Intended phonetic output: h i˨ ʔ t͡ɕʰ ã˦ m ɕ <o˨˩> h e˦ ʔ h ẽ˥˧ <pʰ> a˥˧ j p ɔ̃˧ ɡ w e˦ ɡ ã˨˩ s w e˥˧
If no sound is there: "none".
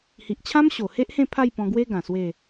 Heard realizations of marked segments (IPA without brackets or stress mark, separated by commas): o˨˩, pʰ